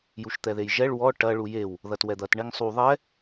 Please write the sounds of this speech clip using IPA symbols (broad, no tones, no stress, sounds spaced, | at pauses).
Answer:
j u ʃ t̪ ɛ ð e j ʒ ɛ ɭ w ɔ ʈ ɐ ɭ u j e w | ð ɐ t w ɛ d̪ ɐ t ɳ e ŋ sˤ u ðˤ ɛ